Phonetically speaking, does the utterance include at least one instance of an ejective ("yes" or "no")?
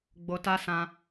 no